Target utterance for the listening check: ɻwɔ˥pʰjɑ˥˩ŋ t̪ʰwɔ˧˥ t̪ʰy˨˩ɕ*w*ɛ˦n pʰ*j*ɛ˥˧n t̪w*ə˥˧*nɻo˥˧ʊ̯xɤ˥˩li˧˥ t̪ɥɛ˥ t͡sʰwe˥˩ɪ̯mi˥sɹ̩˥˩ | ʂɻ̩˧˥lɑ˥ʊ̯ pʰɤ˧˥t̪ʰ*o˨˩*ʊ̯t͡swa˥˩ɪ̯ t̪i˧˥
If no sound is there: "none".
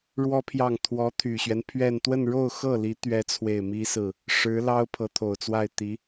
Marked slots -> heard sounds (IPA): ɥ, ɥ, ə˥˧, o˨˩

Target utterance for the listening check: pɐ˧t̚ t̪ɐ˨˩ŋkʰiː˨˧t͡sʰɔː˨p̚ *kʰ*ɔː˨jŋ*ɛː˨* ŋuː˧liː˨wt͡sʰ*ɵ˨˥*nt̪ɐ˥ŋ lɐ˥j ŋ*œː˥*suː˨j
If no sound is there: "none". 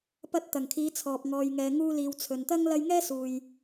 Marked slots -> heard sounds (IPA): ŋ, ɛː˨, ɵ˨, ɛː˥

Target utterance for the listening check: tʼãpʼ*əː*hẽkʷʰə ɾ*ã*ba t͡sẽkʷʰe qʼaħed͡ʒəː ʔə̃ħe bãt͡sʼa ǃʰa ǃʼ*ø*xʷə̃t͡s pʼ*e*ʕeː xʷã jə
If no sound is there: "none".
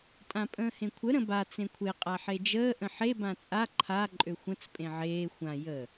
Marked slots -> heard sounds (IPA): ə̃ː, ə̃, ø, ẽ

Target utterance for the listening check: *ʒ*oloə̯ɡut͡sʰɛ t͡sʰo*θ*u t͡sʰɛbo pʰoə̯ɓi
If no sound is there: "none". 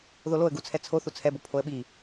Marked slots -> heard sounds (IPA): ð, θ

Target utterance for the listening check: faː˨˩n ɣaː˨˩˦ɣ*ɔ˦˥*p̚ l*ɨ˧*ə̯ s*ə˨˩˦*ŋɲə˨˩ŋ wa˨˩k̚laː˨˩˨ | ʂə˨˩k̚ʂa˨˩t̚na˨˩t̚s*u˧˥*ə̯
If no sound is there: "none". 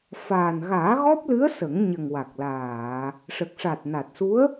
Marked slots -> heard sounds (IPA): ɔ˦˥, ɨ˧˥, ə˨˩˦, u˧˥

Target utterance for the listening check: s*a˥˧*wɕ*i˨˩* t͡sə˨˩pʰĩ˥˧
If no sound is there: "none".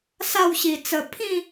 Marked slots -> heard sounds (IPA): a˥˧, i˨˩

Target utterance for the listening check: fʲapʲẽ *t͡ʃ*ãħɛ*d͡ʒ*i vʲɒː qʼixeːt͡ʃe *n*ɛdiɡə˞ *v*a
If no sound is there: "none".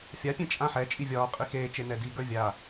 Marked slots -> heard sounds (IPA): t͡ʃʼ, t͡ʃʼ, n, vʲ

